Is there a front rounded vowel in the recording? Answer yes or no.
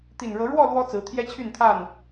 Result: yes